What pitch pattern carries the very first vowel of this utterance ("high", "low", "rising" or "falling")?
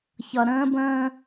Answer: low